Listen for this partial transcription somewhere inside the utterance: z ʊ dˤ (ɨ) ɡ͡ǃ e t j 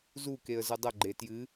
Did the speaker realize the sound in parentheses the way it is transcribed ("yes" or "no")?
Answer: no